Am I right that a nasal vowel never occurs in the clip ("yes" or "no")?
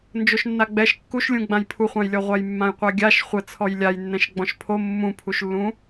no